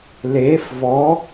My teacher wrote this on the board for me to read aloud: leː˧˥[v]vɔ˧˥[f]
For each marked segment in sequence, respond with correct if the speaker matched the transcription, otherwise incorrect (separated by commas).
incorrect, incorrect